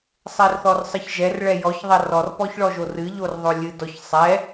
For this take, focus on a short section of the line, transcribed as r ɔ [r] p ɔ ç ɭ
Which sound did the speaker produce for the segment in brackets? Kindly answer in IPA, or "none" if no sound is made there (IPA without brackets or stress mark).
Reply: r